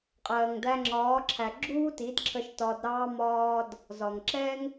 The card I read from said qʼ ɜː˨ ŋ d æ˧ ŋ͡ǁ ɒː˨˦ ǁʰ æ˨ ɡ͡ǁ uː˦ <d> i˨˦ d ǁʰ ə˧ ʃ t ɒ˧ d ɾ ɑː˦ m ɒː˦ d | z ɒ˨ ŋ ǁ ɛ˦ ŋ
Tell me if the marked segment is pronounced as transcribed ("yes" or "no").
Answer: no